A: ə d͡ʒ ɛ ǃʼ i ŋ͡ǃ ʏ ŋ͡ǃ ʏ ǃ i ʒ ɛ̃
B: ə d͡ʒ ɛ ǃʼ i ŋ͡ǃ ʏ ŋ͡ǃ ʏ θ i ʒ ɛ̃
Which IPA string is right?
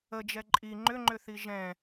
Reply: B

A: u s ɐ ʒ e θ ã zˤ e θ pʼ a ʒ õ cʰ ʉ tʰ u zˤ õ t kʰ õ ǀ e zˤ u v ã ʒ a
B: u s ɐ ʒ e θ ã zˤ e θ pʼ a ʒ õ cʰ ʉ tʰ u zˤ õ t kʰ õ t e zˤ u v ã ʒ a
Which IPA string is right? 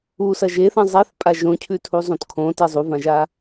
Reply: B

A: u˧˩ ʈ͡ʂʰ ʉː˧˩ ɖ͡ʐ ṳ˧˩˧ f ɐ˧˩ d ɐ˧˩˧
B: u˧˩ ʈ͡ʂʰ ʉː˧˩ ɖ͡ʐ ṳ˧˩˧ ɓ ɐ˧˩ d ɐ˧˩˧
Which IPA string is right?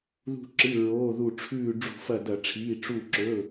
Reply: A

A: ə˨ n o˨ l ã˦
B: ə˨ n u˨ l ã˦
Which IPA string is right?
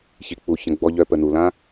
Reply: B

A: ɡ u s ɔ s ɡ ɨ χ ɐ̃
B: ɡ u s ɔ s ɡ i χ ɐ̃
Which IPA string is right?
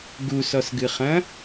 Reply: A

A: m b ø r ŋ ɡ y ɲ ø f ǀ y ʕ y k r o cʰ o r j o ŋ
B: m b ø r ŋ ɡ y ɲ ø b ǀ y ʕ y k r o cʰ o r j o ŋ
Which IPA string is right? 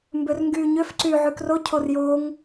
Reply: A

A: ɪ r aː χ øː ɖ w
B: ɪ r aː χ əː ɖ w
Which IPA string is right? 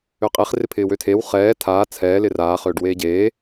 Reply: A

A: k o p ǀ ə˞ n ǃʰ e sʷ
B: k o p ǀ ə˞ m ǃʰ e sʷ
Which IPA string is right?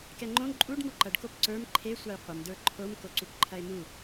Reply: B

